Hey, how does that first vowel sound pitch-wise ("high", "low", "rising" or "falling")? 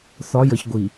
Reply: rising